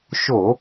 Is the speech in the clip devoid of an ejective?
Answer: yes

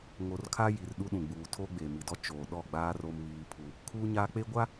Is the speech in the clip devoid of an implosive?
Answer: no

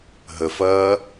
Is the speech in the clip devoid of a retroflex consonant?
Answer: yes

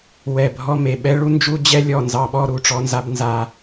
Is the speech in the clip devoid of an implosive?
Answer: no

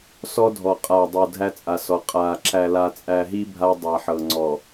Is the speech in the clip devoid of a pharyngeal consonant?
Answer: no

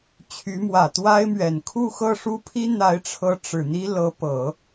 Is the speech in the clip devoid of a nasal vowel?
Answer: yes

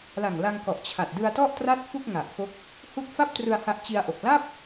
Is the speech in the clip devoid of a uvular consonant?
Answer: yes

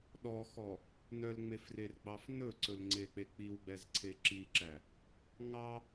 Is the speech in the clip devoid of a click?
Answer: no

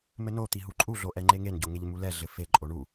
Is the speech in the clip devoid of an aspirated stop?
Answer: yes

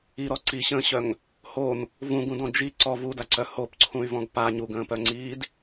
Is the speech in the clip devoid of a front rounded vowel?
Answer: no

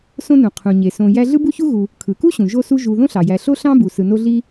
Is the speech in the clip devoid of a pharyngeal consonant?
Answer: yes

